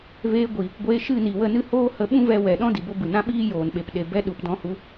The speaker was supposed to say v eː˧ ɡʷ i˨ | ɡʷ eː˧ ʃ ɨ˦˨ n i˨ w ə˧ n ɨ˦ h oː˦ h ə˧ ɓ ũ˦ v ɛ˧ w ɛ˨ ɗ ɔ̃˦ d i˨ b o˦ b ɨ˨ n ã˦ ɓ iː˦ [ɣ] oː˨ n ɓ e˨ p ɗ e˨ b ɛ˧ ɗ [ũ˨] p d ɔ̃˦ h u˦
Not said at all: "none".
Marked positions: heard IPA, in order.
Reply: j, u˨

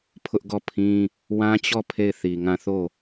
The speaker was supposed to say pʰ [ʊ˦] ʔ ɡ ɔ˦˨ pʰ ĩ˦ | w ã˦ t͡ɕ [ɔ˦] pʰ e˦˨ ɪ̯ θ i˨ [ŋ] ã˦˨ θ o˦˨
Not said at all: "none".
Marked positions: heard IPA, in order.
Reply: ʊ˦, ɔ˦˨, ŋ

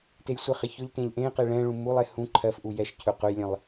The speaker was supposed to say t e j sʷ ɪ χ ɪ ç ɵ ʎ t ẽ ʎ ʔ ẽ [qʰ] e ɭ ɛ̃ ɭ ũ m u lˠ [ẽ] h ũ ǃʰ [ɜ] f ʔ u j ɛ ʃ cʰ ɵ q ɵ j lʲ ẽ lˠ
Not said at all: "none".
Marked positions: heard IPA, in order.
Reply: q, e, ɜ

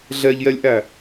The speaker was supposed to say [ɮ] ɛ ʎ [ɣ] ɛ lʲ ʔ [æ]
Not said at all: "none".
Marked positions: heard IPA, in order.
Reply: ɮ, j, æ

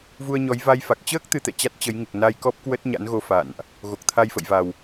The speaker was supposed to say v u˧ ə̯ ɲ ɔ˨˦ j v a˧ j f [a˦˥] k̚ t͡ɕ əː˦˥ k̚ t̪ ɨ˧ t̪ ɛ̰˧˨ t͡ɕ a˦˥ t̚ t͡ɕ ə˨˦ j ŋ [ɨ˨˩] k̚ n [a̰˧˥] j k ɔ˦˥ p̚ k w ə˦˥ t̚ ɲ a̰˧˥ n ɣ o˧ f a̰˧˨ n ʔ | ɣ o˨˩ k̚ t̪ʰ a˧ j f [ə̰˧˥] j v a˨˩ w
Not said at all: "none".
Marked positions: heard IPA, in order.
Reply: a˨˩, ɨ˨˩, a˧, ə̰˧˨

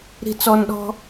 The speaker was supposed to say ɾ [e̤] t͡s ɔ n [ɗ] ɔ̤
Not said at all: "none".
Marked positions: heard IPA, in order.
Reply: i̤, ɗ

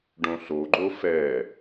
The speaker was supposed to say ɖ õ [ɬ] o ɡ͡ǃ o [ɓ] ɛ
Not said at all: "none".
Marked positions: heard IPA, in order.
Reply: ɬ, f

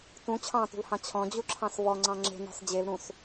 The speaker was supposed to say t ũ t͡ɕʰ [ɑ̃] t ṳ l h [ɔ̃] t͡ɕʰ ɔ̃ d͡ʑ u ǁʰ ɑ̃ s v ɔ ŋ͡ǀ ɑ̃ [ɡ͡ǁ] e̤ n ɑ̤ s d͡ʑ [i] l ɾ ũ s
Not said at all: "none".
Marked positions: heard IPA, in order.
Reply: ɑ̃, ɑ̃, ŋ͡ǁ, e

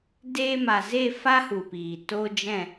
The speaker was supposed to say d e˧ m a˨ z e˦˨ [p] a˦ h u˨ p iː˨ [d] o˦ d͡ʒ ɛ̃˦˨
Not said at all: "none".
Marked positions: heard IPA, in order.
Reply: f, t

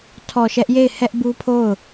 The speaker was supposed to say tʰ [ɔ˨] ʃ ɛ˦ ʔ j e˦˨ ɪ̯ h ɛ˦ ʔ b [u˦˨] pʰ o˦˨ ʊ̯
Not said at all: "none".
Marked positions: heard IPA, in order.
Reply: ɔ˨, u˦

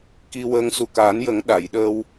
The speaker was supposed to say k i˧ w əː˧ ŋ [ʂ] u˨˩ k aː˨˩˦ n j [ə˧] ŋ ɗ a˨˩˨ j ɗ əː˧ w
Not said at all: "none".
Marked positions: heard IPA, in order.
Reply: s, ə˨˩˦

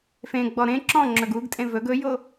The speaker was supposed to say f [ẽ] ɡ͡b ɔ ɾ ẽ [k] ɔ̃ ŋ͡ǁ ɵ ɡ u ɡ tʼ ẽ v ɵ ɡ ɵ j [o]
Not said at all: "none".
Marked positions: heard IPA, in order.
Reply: ẽ, ǁ, o

